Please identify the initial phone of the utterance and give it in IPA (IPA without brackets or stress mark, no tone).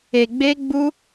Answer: e